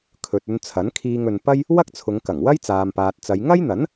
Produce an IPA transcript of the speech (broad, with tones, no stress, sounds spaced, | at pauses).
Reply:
kʰ ɵ˨ t̚ ɵ˧ n t͡sʰ ɐ˨˥ n kʰ iː˧ ŋ ɵ˨ n p ɐ˥ j | w ɐ˥ k̚ t͡sʰ ʊ˨˧ ŋ k ɐ˨˩ ŋ w ɐ˥ j t͡s aː˨ m p aː˨ t̚ t͡s ɐ˨˧ j ŋ ɐ˥ j n̪ ɐ˨˥ n